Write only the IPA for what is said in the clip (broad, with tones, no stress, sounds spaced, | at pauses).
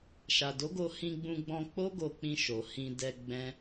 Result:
ʃ a˨ d o˨˦ ɡ o˧ h ĩ˧ ɡ͡b ũ˧ ɡ͡b ɔ̃˧ k͡p o˦ ɡ o˧ k͡p ĩ˧ ʃ o˨ h ĩ˧ d ɛ˧ ɡ͡b ɛ̃˦